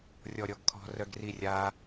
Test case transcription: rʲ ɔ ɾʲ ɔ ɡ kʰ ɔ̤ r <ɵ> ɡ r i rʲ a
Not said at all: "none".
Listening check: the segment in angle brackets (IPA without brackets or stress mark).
œ